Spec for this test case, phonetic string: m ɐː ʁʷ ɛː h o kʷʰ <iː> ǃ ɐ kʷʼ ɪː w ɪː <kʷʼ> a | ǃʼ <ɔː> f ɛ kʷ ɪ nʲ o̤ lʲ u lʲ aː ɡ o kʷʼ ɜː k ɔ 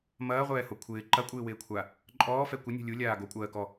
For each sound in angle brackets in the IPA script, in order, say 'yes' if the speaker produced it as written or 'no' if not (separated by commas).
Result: no, no, yes